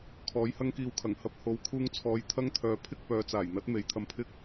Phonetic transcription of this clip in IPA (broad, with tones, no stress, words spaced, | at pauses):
kʰɔː˨˥jhɐ˥ŋkiː˧wkʰɐ˨˩ŋ hɐ˧p̚ ho˨˧wkʰuː˧ŋt͡sʰɔː˨˧j t̪ʰɐ˥ŋt̪ʰœː˨ pʰɪ˥k̚pœː˨˧t͡saː˨˩jn̪ɐ˨˥t̚ me˨˧jt̪ʰɐ˧mpʰɪ˥k̚